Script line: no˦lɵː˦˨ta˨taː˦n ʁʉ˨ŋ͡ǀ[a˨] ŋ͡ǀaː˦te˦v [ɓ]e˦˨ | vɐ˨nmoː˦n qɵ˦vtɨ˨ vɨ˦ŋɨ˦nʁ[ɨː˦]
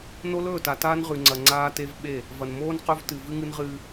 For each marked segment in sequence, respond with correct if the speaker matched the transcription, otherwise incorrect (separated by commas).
incorrect, correct, correct